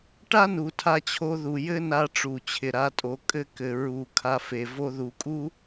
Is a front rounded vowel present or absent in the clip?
absent